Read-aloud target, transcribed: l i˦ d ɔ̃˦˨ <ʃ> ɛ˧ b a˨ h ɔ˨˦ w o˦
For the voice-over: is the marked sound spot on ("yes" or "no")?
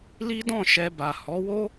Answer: yes